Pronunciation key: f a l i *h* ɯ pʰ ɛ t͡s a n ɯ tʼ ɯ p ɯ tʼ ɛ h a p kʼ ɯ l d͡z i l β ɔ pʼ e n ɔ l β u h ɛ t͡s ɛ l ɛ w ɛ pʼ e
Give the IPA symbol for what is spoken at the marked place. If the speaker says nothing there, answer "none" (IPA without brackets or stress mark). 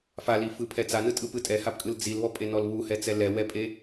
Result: f